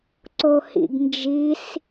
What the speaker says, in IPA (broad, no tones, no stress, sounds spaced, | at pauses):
ǀ o h ḭ ɡ n d͡ʒ i s